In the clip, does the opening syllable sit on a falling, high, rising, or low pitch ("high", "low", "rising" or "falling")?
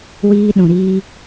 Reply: high